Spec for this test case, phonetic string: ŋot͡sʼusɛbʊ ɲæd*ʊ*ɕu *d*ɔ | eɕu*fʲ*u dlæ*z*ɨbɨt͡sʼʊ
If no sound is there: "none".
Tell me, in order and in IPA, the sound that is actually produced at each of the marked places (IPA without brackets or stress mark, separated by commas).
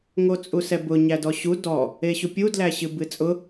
ɔ, d, pʲ, ɕ